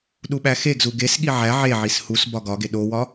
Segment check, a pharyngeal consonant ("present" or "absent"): present